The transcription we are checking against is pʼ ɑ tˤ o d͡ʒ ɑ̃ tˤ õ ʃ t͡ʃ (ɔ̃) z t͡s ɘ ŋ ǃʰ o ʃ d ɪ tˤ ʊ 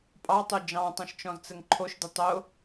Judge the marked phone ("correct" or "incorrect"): correct